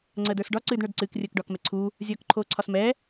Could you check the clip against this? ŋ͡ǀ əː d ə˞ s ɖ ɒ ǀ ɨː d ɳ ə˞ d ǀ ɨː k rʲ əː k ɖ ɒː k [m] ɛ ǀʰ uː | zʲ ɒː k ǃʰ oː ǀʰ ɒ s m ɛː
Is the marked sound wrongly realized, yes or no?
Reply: no